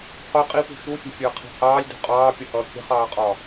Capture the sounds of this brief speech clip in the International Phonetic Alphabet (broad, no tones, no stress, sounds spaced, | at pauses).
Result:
q ʊ qʼ i p ṳ ʃ u fʲ ɛ̤ fʲ əː qʰ i̤ h ɑː lʲ d ṳ qʼ ɑː pʲ ʌ h ʌː kʲ ə̤ χ ɑː qʼ ɒ